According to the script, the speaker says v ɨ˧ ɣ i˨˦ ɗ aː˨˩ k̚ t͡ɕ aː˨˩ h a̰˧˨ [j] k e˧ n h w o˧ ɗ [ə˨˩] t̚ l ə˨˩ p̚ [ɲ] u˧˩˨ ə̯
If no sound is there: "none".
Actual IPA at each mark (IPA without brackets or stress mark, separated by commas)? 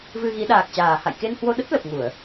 j, ə˦˥, ŋ